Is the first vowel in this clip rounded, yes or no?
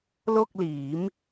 yes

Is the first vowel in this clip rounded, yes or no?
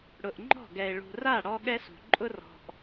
yes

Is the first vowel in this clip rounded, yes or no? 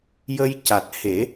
no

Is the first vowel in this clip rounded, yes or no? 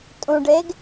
yes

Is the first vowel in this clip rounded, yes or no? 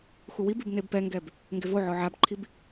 yes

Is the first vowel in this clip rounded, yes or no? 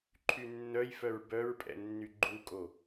yes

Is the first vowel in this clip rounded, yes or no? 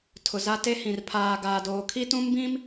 yes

